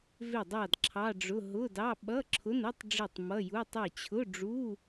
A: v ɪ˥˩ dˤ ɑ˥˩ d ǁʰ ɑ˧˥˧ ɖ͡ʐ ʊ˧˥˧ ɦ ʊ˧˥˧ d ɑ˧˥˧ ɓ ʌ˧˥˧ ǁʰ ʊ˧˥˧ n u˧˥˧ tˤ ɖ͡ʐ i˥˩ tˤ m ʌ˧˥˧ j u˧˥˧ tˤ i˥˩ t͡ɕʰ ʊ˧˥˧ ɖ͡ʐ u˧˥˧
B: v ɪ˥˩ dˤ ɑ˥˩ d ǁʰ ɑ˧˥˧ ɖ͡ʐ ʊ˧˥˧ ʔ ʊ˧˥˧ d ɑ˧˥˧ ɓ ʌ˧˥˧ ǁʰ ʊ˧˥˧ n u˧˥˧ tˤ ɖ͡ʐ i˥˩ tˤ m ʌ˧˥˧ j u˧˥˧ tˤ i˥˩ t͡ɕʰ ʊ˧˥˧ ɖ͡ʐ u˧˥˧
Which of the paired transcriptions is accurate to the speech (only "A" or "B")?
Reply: A